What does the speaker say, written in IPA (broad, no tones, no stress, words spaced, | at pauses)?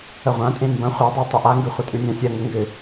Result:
əʁʷãtʼẽ mbɐ̃ χʷadˤa tˤʏʔaŋɡʉ χʷətʼʉnʲãsʲɐ ŋəŋɡʏ